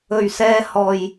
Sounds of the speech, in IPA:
ɵ˨ɥsɛː˧ hɔː˨j

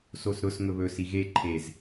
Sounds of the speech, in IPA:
sosɾʊs ŋɵβɵ siɣe ǃʰez

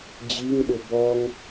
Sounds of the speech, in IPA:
d͡ʑiŋɗʊ bɔŋ

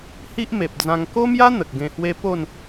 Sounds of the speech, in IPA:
hi˦ʔme˨p̚d͡zã˧ŋ ko˦mja˦ n̪ə˨k̚ɡẽ˧hwe˦ po˥˧n

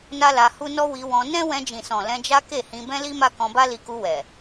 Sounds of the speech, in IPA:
na˦la˧hu˦ nɔ˦wi˧wɔ̃˧ nɛ̃˦wɛ̃˧d͡ʒĩ˨sɔ̃˨ lɛ̃˧d͡ʒa˦ ke˦˨hĩ˧ bɛ̃˦li˦ma˦ kɔ̃˧ba˦li˧ku˧ wɛ˨

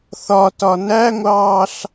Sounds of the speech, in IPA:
θɒtɒ næŋʷɑːɬ

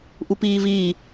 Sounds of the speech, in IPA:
ʔupiːvi

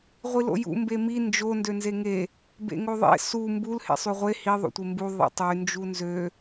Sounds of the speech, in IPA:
ʁʷilo̰jṵ mbemi nd͡ʒo ndønzeŋe | bḛŋoðˤḛ su mbul hḛsˤyʁʷe hi ðˤo̰tʷembu ðˤḭtˤy nd͡ʒunzø

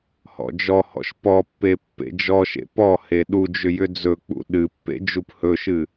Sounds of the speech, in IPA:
hɔ̰d͡ʒɔhɔ̰ʃ pɔpːe pːḛd͡ʒɔʃḛ pɔ heɗud͡ʒʏ jʏd͡zɵk͡pṵ ɗɨpːḛ d͡ʒuphɵʃɨ

